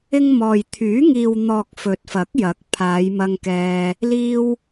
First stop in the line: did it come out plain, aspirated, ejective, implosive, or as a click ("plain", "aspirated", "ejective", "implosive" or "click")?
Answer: aspirated